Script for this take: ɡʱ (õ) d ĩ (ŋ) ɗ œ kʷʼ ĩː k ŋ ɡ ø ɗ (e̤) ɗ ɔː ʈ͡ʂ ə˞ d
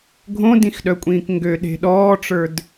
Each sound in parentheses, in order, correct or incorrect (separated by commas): correct, incorrect, correct